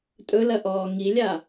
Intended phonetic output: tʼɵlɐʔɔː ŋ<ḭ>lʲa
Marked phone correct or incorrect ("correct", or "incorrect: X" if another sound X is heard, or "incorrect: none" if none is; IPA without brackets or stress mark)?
incorrect: i